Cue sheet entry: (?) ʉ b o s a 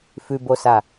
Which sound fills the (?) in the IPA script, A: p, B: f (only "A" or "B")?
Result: B